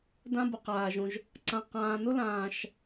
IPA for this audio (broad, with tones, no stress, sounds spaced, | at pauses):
d ã˥ b ʊ˩ q aː˩ ʒ õ˨ ʒ | ǀ ã˨ q ãː˨ n ʊ˥ l ãː˨ ʃ